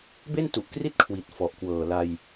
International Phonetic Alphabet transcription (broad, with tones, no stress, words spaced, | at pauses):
be˥˩ntu˨˩ʔkri˥˩t̚kʰwi˨˩t̚ fɔ˨˩ʔkwɤː˨˩la˧j